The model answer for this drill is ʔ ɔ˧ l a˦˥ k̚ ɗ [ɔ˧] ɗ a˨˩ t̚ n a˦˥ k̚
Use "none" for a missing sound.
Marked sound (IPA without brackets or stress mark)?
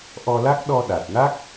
ɔ˧